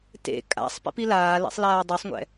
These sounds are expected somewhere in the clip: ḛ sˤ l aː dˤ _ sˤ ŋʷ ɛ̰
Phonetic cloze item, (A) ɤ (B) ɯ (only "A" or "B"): A